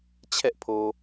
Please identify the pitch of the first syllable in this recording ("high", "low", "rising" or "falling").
high